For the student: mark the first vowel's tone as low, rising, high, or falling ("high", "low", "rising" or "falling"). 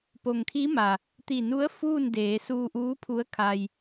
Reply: low